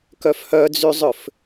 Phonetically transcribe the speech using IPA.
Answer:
k œ f h œ d͡z y zˤ ʏ f

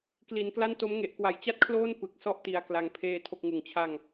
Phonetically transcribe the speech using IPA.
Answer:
k l i˩˦ n k l a˥˩ n t o˦˥ m ŋ e˨˩ ʔ k w a˨˩ j t͡ɕ a˥˩ t̚ kʰ l oː˥˩ n p ɯ˨˩ k̚ s ɔ˥˩ ʔ t i˨˩ a̯ k l a˩˦ ŋ pʰ eː˧ tʰ o˥˩ k̚ ŋ ɯ˨˩ ŋ t͡ɕʰ a˥˩ ŋ

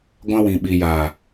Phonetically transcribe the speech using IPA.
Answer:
ɡʷ ã˦ w ĩ˨ ɓ i˨ j aː˨

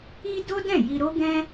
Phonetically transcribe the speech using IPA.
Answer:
i˦ d o˦ d ɛ̃˦˨ j i˧ ɾ o˦ ɡ ɛ̃˦

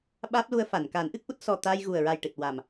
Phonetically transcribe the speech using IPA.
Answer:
ɓ aː˦˥ p̚ l u˧ ə̯ f a˨˩˨ n k aː˨˩˦ n ʔ ɨ˦˥ k̚ ʔ u˦˥ t̚ s ɔ˨˩ t̪ aː˧ j ɣ u˨˩ ə̯ ɹ a˨˩ j ʈ ɨ˨˩ t̚ w a˨˩ m

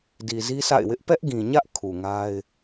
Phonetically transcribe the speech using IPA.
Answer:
d i˨ z i˦ s a̰˦˨ ɪ̯ w ɪ˦ ʔ p ɛ˦ ʔ ɡ ĩ˨ ɲ ä˦ ʔ kʰ u˨ ŋ a˦ ɪ̯

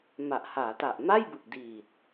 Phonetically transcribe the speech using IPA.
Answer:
m a˨˩ ʔ h aː˩˦ t a˨˩ ʔ m a˥˩ j b ɯ˨˩ k̚ d iː˨˩ t̚

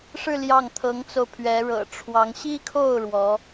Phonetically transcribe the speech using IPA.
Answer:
ʂ ɻ̩˥˧ l j ɑ˥˩ ŋ t̪ʰ ɤ˧˥ ŋ t͡s o˧ ʊ̯ pʰ ɥ ɛ˧˥ ɻ ɤ̰˨˩ ʈ͡ʂʰ w ɑ˧˥ ŋ ɕ i˥ kʰ o˥˩ ʊ̯ ɻ w ɔ˧˥

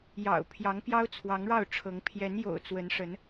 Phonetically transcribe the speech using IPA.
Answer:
j ɑ̰˨˩ ʊ̯ pʰ j ɑ˨˦ ŋ p j ɑ˦ ʊ̯ t͡sʰ w ɑ˨˦ ŋ ɻ ɑ˥˨ ʊ̯ ʈ͡ʂʰ ɤ˨˦ ŋ pʰ j ɛ˨˦ n j o̰˨˩ ʊ̯ t͡s w ə˨˦ n ʂ ə˨˦ n

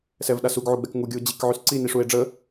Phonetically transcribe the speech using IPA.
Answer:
s ɛ v ɗ a s u ɡ ʕ u ɡ͡b ɛ k ŋ u ɡʲ u o̯ d͡ʑ i k ʕ y s ǀ i n i ʂ u e̯ ɖ͡ʐ ə

